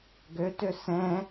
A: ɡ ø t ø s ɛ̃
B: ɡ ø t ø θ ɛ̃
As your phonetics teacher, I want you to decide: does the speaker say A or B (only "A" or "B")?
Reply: A